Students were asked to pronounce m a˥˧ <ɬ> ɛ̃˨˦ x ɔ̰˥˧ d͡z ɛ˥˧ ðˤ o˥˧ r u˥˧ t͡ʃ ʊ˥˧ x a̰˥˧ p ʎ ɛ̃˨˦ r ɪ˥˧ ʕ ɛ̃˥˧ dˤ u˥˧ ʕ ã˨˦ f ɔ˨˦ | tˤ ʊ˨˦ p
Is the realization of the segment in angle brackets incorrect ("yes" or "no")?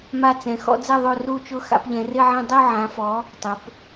yes